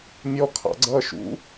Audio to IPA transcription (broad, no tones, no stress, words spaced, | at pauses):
mʲɔkʰɑ̰ ɡ͡ǀʌːʃṵ